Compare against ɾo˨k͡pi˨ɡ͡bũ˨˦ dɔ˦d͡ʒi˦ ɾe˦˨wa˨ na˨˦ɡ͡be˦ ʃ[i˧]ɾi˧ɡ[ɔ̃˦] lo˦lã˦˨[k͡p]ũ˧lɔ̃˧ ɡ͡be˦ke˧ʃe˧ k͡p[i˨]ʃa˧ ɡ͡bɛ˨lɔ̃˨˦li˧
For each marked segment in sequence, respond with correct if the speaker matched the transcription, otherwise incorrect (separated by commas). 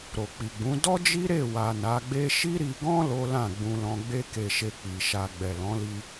incorrect, correct, incorrect, correct